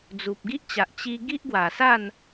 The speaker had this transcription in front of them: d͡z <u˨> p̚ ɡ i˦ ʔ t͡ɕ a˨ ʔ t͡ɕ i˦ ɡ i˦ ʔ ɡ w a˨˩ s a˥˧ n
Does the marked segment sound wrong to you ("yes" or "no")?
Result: no